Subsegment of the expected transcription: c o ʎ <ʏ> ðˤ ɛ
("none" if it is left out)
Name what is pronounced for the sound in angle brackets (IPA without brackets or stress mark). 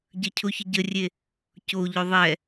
ʏ